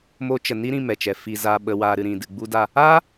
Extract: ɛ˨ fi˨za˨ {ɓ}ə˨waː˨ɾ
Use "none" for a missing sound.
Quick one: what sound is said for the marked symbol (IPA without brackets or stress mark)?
ɓ